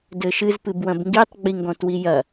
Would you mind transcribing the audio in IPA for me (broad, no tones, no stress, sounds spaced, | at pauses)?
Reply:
d ɘ ʃ ɨ z p ɨ b w ɐ̃ b ŋ ɡ i tˤ ɡ͡b i ŋ ɡ ɔ̃ t w i j ɐ